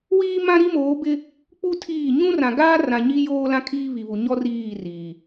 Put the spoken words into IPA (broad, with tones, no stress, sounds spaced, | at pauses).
w iː˦ m ã˦ ɾ i˦ m oː˨˦ b ɪ˦ | k͡p u˦ tʰ iː˦˨ ɲ ũ˦ r ã˨ ɡ aː˦ r ã˨ ɲ i˦ j oː˦ l ã˦ kʰ iː˦ β i˨ β u˨ ɲ ɔ˦ r iː˦˨ r iː˨